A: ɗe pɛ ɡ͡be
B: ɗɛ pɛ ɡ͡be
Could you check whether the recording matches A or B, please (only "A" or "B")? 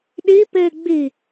A